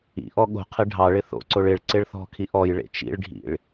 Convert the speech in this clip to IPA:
ḭ ʔ ɔ ɠ o̤ qʰ ɪ ɖʱ ɑ ɭ ɪ θ o̰ ǀ o ɭ ɪ ɭ ǀ ɪ ɭ θ ɔ̤ kʰ i ʔ ɔ j ɭ ḛ t͡ʃ ḭ ɭ ɖʱ ḭ ɭ

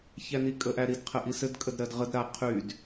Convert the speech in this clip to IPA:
ç æ n i kʼ ə ʔ æ ɾ i d qʰ ɘ ʔ i s ɘ d kʼ ə d ɾ ɜ d ʁ ə d ɾ a qʰ y d

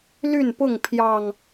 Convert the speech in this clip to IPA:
l y˥˨ n p ʊ˥˨ ŋ pʰ j ɑ˨˩ ŋ

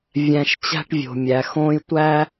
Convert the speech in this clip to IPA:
vʲ æ̃˨ ʃ t͡ɕ æ̤˦ ʈ vʲ o̤˩ mʲ æ˩ x õː˦ j tʷ æ˥

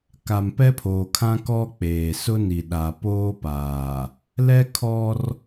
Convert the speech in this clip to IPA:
k a˨ m p ɛ˦ pʰ oː˨ kʰ ã˦ k ɔ˦ k͡p eː˨ s ʊ˦ n i˨ ɗ a˨ p oː˦ p aː˨ | l ɛ˦ kʰ ɔ˦ r

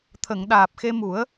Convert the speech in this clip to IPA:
t̪ʰ ə˨˩˨ ŋ ɗ aː˨˩ p̚ x e˧ m u˨˩˦ ə̯

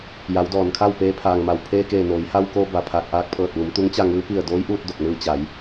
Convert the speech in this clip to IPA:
j a˩˧ w d ɔː˩ n kʰ a˥˨ w p eː˧ pʰ aː˩ ŋ m a˩ w pʰ eː˧ k eː˧˩ n oː˩˧ j h a˧ w k oː˧ b a˧˩ pʰ a˧˩ k̚ ʔ aː˧ k̚ pʰ ɤː˧˩ t̚ ʋ u˩˧ m t̪ u˧˥ ŋ t͡ɕ a˥˨ ŋ ɯː˧˥ p i˥˨ ə̯ d oː˧˥ j ʔ uː˧ t̚ d o˧˩ k̚ n ɯː˧ t͡ɕ a˩˧ j

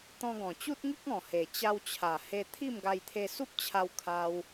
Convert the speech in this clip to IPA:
t̪ ɔ̃˧ ɡ ɔ̃˨˩ t͡ɕ u˦ t̚ ŋ i˦ k̚ ɔ̃˨˩ h e˨˩ t͡ɕ a˧ w t͡ɕʰ a˨˩ h e˧ t̪ʰ i˥˧ m ɡ a˧ j t̪ʰ e˧ s u˦ p̚ t͡ɕʰ a˧ w kʰ a˧ w

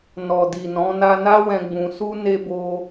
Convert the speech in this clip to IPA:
n ɔ˨ d i˨ n ɔ̃˨˦ n a˧ n a˦ w ɛ̃˧ ɡ͡b ũ˧ s u˦ n e˦ b o˦

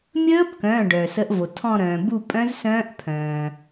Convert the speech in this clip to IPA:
mʲ əː˦˥ b k œ̃˩˧˩ ɖ œ˩ s ə˩˥ ʔ v o˩ tʰ ɔ̃˦˨ ɾ œ̃ː˩ b u˦˨ pʼ œ̃˦˥ z s œ̃ː˦˥ ʔ pʰ œ̃ː˩

